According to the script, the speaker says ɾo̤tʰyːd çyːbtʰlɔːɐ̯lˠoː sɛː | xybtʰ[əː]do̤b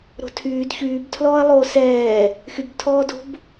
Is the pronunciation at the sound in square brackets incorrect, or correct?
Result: incorrect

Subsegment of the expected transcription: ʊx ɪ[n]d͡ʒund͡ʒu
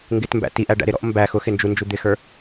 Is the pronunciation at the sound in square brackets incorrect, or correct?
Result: correct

